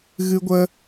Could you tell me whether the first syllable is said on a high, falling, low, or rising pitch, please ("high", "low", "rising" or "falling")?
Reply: high